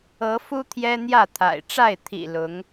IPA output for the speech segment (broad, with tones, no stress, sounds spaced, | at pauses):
ɤ˨˦ f u˦ t̪ʰ j ɛ˦ n̪ j ä˥˨ t̪ʰ a̰˨˩ ɪ̯ ʈ͡ʂ a˥˨ ɪ̯ t̪ʰ ḭ˨˩ l ʊ˨˦ ŋ